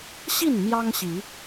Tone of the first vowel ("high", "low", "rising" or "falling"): falling